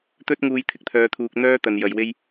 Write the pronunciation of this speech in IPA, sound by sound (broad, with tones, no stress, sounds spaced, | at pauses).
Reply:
t̪ ɵ˥ t̚ ŋ uː˧ j t̪ʰ ɪ˨ k̚ t̪ʰ œː˧ t̪ʰ uː˧ k̚ n̪ œː˥ t̪ ɐ˧ n j ɐ˧ j w e˥ j